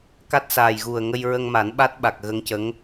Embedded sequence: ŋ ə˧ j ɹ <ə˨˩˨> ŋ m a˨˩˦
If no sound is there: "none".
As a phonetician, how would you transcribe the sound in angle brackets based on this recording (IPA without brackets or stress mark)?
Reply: ə˧